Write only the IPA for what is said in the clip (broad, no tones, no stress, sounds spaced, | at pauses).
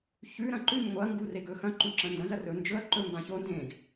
ç ʉ ɾ ɐ̃ ǃ ʉ ɲ ŋʷ ɐ ŋ ɡ u r e ɡ ɵ x ɐ̃ ǃ ũ ǁ ɐ̃ n d ɐ̃ z ɐ r ɵ n d͡ʒ ɵ ɐ̯ ǃ ɵ m b ã ç o n d ẽ ɡ